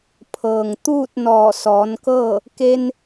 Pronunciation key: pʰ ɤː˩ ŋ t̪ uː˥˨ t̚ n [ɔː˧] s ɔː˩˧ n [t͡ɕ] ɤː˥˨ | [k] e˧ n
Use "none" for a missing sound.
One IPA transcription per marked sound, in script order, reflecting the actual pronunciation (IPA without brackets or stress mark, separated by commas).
ɔː˧˩, k, k